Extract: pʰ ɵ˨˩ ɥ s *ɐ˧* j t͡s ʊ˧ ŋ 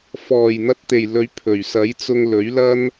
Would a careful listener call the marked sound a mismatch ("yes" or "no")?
yes